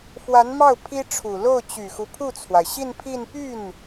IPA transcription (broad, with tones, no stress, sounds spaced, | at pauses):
f w a˧˥ n m ɑ˥˩ ʊ̯ pʰ i˥ ʈ͡ʂʰ u˨˩ l o˥˩ ʊ̯ t͡ɕ y˨˩ x u˦ pʰ u˥˩ t͡sʰ w a˩ ɪ̯ ɕ i˥˧ n pʰ i˥˧ n p y˥˩ n